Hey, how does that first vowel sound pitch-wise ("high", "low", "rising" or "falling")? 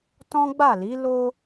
high